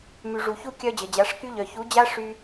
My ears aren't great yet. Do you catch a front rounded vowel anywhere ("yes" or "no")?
yes